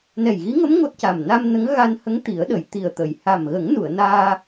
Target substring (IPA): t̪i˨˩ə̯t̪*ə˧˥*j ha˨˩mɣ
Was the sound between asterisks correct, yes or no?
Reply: no